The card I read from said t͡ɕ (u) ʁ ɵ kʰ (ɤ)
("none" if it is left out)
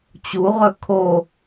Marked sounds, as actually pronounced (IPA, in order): u, o

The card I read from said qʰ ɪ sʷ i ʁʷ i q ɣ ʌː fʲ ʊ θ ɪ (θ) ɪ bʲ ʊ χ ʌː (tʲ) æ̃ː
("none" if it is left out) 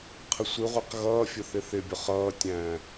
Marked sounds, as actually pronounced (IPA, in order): θ, tʲ

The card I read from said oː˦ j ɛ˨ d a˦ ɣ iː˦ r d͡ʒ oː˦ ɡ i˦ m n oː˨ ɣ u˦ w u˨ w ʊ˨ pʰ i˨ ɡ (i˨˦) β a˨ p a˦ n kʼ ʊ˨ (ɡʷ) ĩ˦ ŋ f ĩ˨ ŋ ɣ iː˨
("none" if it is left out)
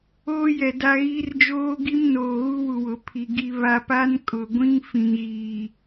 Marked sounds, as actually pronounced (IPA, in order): i˨, ɡʷ

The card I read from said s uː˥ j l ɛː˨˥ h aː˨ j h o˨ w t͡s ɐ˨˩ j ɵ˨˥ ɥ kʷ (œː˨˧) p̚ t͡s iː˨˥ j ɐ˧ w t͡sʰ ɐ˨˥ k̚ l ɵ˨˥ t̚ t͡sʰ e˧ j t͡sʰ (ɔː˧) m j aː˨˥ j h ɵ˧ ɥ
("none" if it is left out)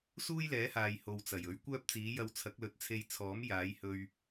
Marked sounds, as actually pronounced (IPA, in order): œː˥, ɔː˨˥

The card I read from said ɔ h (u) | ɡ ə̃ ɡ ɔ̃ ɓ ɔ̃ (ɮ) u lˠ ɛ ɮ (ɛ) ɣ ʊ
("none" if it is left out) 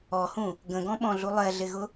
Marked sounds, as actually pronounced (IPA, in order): ũ, ɮ, ɪ

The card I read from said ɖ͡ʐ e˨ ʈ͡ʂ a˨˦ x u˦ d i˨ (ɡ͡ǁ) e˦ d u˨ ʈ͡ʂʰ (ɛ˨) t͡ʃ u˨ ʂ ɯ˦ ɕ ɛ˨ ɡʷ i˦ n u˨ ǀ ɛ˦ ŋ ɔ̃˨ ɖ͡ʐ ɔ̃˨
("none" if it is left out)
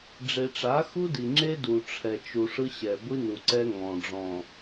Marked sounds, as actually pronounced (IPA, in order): ŋ͡ǁ, ɛ˨

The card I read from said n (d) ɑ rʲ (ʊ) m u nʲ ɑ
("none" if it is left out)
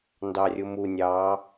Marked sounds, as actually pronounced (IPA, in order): d, ʊ

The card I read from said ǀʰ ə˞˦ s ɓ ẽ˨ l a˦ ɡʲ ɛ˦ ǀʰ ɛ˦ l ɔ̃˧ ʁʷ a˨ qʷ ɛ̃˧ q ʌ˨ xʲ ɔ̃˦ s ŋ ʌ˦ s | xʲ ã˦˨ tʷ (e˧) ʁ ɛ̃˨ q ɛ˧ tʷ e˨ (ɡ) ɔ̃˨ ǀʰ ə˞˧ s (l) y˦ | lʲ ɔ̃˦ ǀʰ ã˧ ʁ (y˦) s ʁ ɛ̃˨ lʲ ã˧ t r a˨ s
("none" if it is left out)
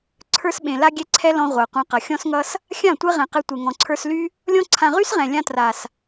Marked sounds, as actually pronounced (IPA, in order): e˦, ŋ, l, y˦

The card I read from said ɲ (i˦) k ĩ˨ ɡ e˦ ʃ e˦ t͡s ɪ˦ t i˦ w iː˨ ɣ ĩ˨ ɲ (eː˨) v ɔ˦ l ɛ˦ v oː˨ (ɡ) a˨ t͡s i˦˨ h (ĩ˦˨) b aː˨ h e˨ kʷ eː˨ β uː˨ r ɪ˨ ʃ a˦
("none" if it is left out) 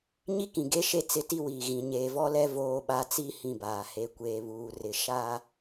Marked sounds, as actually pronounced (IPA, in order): i˦, eː˨, ɓ, ĩ˦˨

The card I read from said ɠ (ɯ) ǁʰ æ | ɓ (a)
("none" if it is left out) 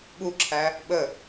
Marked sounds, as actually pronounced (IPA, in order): u, ə

